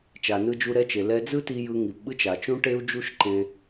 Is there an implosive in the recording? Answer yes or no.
yes